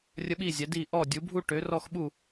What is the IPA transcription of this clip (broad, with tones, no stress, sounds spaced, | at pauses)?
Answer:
rʲ ə˦˥ ɓ iː˥˩ zʲ ɛ˩˥ d iː˥˩ ʔ ɔ˥˩ dʲ u˩˥ bʱ u˥˧ ʈ ø˩˥ r ɔ˥˧ x ɓ uː˥˩